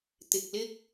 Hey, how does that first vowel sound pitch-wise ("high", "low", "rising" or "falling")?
low